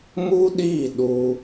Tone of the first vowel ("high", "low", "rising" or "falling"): high